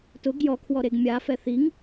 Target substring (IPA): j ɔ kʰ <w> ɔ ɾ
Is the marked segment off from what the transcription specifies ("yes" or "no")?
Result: no